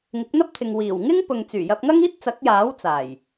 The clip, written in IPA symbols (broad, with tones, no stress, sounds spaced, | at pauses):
ŋ ɪ˨˥ k̚ n̪ ɐ˥ p̚ t̪ʰ ɪ˨ ŋ w iː˨˩ w ŋ ɪ˥ ŋ p ʊ˨ ŋ t͡s yː˨˩ j ɐ˧ p̚ ŋ ɐ˥ ŋ iː˥ t̚ t͡s ɐ˨˥ k̚ j aː˨˥ w t͡s aː˨˩ j